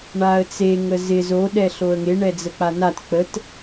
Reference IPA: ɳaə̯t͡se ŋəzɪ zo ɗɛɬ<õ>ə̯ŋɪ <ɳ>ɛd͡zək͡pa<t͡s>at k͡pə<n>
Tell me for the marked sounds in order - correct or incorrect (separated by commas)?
incorrect, correct, incorrect, incorrect